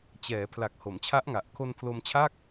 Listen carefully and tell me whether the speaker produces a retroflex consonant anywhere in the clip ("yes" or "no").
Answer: no